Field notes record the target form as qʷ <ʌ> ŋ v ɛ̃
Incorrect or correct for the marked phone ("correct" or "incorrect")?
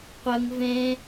correct